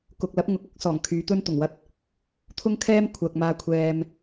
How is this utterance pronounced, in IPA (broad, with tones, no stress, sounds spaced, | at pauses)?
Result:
k ʊ˨ k̚ l ɐ˨˥ p̚ ŋ ʊ˨˥ k̚ ʊ˨˥ k̚ s ɔː˨˩ ŋ kʰ yː˨˧ t̪ ɵ˥ n t̪ ʊ˨˩ ŋ w ɐ˧ t̚ | t̪ʰ ʊ˥ ŋ kʰ ɛː˥ m kʷʰ ɐ˨ k̚ m aː˧ kʷʰ ɛː˧ m